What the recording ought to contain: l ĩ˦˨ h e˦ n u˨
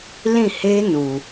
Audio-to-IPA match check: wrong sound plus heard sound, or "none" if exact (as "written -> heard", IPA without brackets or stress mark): none